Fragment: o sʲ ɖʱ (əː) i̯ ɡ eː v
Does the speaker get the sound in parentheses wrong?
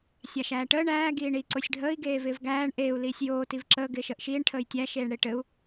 no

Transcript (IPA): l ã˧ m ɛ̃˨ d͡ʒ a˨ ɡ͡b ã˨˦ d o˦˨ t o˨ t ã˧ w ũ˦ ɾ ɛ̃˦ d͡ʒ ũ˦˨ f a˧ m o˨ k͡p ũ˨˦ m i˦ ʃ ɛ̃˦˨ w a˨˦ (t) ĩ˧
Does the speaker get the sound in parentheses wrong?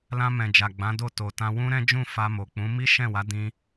yes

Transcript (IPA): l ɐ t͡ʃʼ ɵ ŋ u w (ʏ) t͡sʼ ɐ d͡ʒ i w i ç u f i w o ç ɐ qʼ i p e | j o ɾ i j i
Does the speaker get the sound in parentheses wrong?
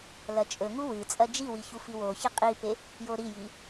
yes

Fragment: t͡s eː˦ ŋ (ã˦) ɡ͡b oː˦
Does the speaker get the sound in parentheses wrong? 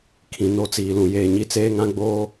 no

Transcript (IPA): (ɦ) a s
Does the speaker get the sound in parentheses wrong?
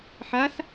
yes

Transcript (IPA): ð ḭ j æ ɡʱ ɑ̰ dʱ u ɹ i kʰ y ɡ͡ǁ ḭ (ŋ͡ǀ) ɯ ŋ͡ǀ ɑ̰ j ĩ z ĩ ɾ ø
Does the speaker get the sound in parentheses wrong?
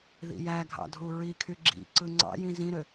yes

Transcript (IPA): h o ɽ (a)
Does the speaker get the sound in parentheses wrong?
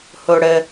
yes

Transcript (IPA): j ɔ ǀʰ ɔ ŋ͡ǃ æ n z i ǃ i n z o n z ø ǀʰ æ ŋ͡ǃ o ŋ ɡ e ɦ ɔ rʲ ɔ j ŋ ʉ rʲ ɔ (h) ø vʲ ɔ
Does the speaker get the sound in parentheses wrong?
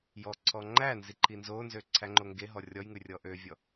yes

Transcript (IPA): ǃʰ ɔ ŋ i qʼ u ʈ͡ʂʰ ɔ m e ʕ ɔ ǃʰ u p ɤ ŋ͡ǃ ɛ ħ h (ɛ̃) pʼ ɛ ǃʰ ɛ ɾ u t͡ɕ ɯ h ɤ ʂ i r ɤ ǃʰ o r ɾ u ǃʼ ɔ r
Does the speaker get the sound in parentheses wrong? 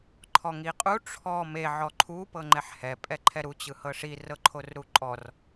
yes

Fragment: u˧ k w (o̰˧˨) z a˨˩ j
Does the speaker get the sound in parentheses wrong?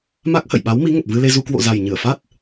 no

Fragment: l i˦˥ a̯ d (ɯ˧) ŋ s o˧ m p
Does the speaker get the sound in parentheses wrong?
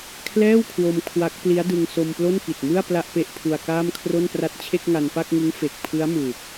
no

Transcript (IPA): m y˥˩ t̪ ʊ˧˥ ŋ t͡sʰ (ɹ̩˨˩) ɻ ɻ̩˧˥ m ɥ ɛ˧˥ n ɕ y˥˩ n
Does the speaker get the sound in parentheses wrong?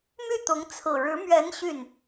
no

